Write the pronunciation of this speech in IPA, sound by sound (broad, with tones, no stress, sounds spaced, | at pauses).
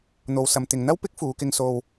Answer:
n̪ o˨ w s ɐ˨ m t̪ ɪ˨ ŋ n̪ ɐ˥ w p ɪ˥ k̚ f uː˨˧ k ɪ˧ ŋ s o˨ w